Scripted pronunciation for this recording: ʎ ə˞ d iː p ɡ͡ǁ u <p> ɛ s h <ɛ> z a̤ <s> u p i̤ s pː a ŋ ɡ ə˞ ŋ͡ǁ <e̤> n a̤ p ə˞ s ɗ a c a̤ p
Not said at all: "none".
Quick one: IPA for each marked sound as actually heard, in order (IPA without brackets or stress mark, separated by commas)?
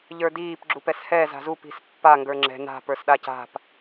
p, ɛ, z, ɛ̤